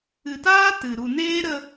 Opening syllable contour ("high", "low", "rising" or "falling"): low